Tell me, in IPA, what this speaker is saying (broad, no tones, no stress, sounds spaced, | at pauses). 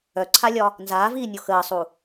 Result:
œ ǀʰ a lʲ ɒ | n z aː v iː nʲ o x əː sˤ u